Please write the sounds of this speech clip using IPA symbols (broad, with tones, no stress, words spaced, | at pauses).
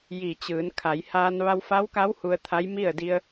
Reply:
ji˧˩t͡ɕɯː˩˧n kʰa˩˧jhaː˧n ʋa˧wfa˧˥wka˧˥w hu˧ə̯t̪ʰa˧˥jmi˥˨ə̯ di˧ə̯